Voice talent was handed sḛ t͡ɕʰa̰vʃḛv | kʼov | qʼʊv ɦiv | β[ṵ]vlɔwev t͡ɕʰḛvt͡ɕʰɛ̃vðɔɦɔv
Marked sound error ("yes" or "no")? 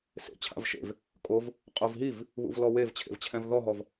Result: no